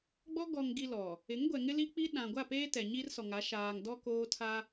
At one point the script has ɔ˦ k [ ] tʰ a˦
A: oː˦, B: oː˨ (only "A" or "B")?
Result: A